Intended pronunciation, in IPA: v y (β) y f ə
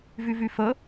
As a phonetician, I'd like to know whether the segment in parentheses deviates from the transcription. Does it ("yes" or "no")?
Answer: yes